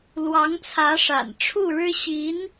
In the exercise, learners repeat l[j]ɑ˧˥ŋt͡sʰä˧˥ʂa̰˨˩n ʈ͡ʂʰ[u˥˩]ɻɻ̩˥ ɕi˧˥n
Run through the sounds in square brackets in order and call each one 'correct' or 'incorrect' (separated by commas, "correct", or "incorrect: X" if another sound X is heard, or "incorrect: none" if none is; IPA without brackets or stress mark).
incorrect: w, correct